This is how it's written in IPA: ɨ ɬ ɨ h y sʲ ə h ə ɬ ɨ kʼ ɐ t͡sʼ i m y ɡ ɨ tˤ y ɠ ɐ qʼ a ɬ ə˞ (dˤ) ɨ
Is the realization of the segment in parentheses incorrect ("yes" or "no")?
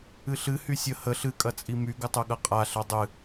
no